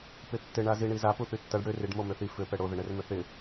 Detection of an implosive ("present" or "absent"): absent